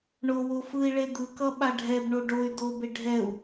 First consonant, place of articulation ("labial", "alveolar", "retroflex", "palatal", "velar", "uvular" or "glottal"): retroflex